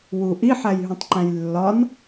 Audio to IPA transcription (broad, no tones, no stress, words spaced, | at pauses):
wu ʔiħæjɦũtˤǃæ̃j lːɒn